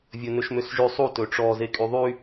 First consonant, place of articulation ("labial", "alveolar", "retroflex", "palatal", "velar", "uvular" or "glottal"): labial